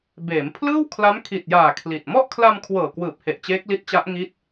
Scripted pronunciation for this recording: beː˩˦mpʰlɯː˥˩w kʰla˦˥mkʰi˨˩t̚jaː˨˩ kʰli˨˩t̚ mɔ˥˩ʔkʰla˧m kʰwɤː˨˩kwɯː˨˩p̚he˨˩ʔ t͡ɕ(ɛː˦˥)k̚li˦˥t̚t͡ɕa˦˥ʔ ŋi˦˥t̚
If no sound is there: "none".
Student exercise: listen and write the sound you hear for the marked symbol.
eː˦˥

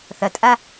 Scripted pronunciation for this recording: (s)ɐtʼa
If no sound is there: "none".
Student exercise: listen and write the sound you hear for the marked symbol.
θ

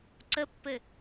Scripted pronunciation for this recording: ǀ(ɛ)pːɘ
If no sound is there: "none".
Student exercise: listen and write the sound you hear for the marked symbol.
ə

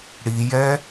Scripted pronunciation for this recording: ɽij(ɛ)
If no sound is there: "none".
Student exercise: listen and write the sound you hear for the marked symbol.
ɛ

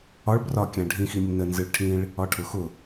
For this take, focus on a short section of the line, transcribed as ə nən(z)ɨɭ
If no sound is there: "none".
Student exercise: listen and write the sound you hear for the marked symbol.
z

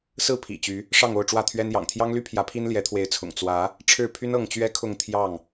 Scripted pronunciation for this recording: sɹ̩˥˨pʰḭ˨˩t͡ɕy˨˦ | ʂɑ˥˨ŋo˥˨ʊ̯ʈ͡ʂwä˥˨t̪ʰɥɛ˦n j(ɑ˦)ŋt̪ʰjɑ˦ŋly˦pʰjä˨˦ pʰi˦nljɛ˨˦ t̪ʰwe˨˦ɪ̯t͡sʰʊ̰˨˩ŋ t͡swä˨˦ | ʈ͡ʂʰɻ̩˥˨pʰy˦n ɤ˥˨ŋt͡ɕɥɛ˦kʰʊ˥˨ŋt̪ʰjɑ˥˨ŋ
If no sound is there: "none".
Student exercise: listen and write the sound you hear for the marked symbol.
ɑ̰˨˩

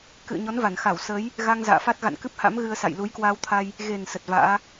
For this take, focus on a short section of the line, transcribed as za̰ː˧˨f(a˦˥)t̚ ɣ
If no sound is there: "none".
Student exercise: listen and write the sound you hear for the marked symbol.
a˦˥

